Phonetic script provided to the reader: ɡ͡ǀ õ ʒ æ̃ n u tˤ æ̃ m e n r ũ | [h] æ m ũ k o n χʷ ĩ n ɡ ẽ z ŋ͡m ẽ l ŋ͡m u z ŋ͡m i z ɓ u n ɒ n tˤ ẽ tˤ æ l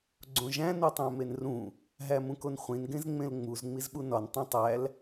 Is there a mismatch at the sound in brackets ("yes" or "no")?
yes